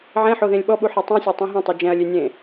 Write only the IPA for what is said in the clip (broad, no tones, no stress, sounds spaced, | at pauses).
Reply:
ʕ ẽ ħ o ð ẽ lʲ ɓ ɔ ɓ u ħ ɛ tˤ ũ sʲ ɔ tˤ ɛ̃ ɦ ũ tˤ o d͡ʒ ɛ̃ ɐ̯ lʲ e nʲ ẽ